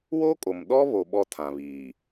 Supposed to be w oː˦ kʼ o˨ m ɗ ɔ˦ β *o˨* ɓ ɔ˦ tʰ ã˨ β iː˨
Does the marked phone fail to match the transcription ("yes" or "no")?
no